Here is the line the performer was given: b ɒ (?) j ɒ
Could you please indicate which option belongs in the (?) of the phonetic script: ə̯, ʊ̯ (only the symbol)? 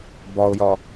ʊ̯